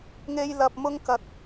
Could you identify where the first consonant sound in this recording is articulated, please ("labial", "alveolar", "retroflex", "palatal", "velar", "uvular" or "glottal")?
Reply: velar